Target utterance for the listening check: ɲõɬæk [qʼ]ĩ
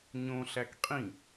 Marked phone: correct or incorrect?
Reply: correct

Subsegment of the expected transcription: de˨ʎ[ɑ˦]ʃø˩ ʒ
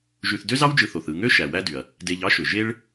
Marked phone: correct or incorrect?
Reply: correct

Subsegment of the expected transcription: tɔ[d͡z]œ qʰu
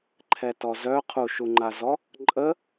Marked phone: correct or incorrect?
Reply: incorrect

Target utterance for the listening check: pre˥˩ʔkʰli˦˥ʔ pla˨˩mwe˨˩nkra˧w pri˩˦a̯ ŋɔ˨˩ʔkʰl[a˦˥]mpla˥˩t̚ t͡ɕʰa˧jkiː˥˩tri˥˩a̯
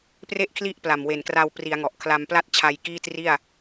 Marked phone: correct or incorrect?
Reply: incorrect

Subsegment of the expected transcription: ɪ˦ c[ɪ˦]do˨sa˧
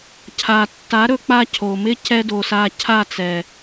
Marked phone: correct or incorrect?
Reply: incorrect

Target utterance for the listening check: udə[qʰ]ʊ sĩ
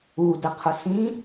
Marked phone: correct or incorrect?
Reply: correct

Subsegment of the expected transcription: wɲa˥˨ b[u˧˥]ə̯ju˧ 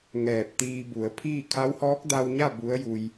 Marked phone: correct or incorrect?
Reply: correct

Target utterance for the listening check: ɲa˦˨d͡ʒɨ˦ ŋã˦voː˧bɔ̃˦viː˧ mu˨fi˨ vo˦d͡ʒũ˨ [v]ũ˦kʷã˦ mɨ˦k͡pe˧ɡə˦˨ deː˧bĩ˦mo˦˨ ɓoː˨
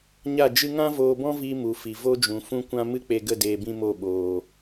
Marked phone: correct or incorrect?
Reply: incorrect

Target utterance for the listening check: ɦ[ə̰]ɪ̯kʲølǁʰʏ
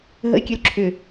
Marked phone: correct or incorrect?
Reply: correct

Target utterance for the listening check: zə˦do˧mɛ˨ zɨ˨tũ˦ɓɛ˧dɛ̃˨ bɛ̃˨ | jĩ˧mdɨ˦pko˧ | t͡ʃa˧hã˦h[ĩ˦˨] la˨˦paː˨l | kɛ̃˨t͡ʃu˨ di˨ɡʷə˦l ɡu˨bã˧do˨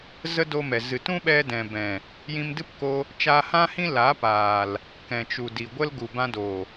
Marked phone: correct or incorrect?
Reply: incorrect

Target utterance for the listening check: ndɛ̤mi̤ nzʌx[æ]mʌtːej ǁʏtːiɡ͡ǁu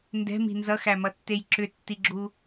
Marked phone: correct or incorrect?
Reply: correct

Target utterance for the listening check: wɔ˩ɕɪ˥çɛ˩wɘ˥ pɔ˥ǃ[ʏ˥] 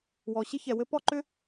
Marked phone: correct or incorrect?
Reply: correct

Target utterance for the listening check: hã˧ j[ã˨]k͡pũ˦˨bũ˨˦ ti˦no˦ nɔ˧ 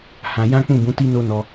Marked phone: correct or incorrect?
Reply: incorrect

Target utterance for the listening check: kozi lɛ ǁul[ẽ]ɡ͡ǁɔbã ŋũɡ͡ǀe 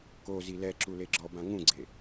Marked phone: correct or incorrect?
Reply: incorrect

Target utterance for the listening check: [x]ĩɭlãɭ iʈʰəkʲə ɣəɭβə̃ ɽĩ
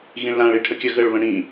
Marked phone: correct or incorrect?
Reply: incorrect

